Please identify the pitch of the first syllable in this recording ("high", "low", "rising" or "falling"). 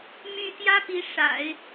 high